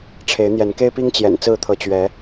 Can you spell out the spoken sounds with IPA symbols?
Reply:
ʈ͡ʂʰ e˨˦ ɪ̯ n̪ j ɛ˨˦ n k e˦ ɪ̯ p i˦ ŋ t͡ɕ j ɛ̰˨˩ n t͡s ɹ̩˥˨ t̪ʰ ɤ˨˦ t͡ɕ ɥ ɛ˨˦

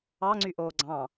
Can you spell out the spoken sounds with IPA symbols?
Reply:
ɑ ŋ͡ǀ y ʔ oː ɡ͡ǀ ɑ̃

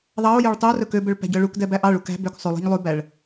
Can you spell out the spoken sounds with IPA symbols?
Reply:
ðˤ ɑ o̯ j ø ɭ tˤ y o̯ r ɵ k ø b ø ɭ p æ̤ ɟ œ ɭ u k d ɛ b æ ʔ ɑ ɭ u k æ̤ b ø k sˤ ʉ lˠ i̤ ɲ lˠ ʉ b æ ɭ

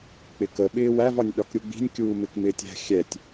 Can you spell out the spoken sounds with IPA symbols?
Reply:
k͡p ɪ k ə ɓ ɪː w æ v ɒ nʲ ɗ ɒ k ɾʲ u ɡ͡b i̤ nʲ kʲ uː m ɪ k m ɪː tʲ æ̤ xʲ ɛ tʲ

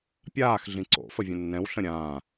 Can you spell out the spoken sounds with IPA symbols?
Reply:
pʲ aː x ɮ ĩ ǀ o̰ f ə vʲ ə̃ nː ɛ̃ w ɬ ə̃ ɾʲ ãː

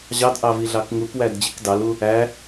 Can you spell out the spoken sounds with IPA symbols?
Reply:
ʑ ɑ d ʔ ɑ v i ɮ ɑ k ŋ u k w æ d d͡ʑ i k d ɑ l u | æ

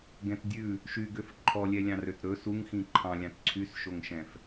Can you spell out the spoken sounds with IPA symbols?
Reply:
ɡ ɛ̃ t dʲ ʉ | ʃ y ɡ ø f ǃʰ ɔ lʲ ɛ lʲ ɑ̃ r ø t ɾ ɵ s u ŋ x ĩ ǃʰ ɑ̃ lʲ ɑ̃ t ǀʰ y s ʃ o ŋ ʃ ɛ̃ f

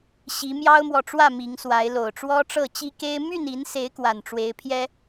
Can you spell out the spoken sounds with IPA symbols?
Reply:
ɕ i˨˦ m j ɑ˦ ʊ̯ m w ɔ˨ ʈ͡ʂ w ä˥˨ m i˨˦ ŋ s w a˨˦ ɪ̯ l o˨˩ ʊ̯ ʈ͡ʂ w ɔ˦ ʈ͡ʂ ɤ˥˨ t͡ɕ i˦ k e˦ ɪ̯ m y˥˨ n i˨˦ n s e˨˦ ɪ̯ k w a˨˩ n ʈ͡ʂ w e˨˦ ɪ̯ pʰ j ɛ˦

